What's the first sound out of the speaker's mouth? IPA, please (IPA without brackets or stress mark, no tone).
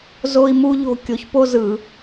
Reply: z